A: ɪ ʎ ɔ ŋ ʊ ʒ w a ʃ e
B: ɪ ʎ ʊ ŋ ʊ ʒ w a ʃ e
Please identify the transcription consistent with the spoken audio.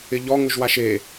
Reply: A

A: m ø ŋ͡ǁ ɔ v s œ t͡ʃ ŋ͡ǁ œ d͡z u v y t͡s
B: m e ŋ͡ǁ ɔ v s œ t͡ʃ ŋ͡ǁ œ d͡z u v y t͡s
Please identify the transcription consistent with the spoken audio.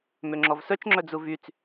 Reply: A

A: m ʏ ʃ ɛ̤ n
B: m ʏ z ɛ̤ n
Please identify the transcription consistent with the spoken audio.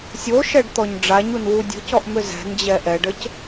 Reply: B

